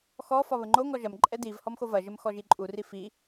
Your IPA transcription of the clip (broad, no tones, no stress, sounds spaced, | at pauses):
x ɔ f ɒ β ə ŋ͡ǃ o ŋ ɔ ʒ ɐ m ǃʼ ɛ d i v h ɔ m x o v ɐ ʒ ə m x ɔ ʒ i ǃʼ u r i f i